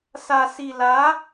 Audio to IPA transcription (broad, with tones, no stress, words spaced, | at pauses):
sa˧si˧la˧˥